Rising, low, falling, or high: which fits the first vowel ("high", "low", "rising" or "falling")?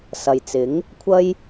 low